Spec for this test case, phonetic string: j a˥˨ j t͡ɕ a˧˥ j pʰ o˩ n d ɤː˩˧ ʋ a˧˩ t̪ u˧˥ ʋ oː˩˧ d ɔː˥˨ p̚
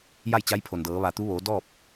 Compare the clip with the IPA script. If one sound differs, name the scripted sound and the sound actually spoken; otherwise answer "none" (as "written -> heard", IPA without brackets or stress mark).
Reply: none